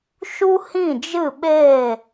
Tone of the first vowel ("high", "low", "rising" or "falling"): high